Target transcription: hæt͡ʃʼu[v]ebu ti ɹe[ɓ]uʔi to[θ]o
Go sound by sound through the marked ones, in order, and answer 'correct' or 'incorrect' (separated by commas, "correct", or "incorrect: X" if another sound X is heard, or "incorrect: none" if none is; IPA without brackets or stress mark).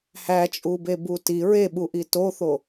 incorrect: b, correct, correct